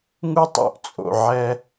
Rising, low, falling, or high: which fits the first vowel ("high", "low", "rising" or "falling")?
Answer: high